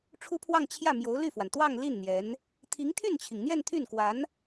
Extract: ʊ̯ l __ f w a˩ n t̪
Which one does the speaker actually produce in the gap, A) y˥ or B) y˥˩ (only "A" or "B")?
B